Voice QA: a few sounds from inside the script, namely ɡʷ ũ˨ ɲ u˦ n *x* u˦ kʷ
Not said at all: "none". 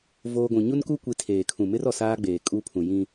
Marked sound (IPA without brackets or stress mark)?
k